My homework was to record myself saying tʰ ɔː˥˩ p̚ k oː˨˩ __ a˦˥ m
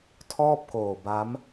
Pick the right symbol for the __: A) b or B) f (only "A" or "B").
A